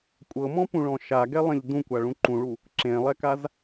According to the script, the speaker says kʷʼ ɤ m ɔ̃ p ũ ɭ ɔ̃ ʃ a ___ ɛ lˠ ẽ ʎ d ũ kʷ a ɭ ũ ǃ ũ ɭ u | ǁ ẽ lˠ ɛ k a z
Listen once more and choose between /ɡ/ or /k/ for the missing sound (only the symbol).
ɡ